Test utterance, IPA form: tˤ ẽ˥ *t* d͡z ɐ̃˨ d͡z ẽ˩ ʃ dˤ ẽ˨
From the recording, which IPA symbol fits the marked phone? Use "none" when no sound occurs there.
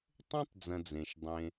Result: tˤ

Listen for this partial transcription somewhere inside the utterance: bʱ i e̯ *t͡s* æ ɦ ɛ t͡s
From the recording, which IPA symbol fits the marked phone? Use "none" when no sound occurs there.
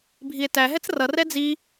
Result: t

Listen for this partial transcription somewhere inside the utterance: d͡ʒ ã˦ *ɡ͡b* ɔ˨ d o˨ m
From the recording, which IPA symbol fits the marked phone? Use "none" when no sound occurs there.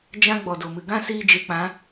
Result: ɡ͡b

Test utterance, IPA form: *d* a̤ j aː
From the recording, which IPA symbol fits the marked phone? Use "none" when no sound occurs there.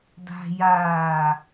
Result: d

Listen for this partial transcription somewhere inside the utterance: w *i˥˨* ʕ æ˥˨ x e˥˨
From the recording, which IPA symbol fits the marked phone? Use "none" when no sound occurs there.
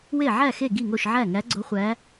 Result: e˥˨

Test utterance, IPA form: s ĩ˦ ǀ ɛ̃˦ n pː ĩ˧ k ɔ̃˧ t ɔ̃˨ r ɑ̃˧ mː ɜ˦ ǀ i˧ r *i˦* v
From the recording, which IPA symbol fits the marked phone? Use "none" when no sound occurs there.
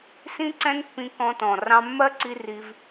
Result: i˧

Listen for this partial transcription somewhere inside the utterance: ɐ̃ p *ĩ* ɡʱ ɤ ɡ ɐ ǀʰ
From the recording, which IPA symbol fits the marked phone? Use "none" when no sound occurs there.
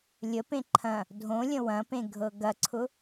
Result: ẽ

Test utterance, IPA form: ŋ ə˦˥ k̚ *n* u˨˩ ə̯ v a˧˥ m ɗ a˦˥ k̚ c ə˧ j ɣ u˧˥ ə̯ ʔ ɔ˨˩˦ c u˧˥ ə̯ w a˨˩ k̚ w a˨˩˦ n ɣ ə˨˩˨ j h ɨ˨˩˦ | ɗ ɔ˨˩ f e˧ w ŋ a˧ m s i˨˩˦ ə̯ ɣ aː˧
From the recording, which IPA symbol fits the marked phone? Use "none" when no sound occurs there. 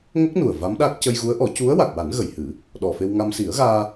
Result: n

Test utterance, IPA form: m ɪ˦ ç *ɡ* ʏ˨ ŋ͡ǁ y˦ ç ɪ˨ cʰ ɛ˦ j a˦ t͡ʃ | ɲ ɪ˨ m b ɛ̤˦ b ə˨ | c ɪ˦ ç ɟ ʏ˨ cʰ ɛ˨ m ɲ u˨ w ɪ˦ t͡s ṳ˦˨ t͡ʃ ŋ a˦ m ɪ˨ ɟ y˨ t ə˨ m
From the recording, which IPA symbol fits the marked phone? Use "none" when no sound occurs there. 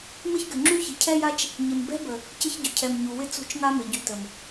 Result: ɡ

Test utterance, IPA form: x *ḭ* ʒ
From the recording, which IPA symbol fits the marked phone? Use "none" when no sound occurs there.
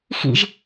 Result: ḭ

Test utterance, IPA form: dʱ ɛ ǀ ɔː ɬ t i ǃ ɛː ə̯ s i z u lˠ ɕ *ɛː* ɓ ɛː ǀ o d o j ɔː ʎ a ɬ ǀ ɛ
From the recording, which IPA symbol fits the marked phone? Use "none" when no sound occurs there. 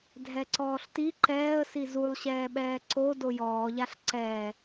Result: ɛː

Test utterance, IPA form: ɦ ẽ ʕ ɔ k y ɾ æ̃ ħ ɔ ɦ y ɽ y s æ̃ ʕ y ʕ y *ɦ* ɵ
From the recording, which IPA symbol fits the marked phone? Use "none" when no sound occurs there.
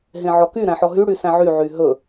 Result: ɦ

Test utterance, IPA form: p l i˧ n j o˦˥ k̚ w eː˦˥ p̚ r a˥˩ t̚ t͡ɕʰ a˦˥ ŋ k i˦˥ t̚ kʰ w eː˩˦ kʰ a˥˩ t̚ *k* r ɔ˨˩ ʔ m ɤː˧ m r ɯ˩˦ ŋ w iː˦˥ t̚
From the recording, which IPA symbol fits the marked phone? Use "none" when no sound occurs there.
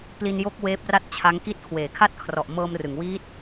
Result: kʰ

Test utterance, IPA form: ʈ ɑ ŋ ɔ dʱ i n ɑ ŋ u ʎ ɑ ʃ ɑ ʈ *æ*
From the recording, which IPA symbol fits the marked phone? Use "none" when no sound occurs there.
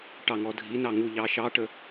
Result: ə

